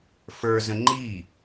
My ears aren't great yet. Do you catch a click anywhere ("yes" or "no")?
yes